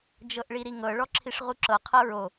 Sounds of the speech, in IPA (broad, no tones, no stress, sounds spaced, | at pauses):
d͡ʒ ɤ ʔ ɭ i ɾ i ŋ ɤ ɭ ɔ ǁʰ i ʂ ʁ u ǁ ɤ qʰ ɤ ɹ o